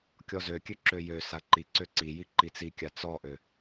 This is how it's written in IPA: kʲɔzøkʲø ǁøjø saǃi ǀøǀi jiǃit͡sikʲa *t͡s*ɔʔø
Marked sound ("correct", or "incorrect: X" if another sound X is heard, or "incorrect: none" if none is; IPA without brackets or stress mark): correct